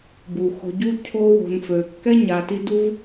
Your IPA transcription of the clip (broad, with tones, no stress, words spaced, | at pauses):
bu˨xo̤˧ɟu˦ cʰo˦ wo̤˧n fø˨ kːɛ˦ɲa˨ti˧ du˦v